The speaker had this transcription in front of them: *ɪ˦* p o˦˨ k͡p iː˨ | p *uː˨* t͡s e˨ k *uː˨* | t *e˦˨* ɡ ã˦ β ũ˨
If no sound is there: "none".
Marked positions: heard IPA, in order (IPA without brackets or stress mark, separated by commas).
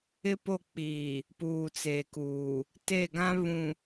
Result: ɪ˦, uː˨, uː˨, e˦˨